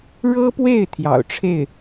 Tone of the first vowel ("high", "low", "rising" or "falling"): high